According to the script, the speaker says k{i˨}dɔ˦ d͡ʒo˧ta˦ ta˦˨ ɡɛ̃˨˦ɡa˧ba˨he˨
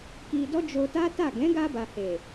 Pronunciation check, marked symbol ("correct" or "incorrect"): incorrect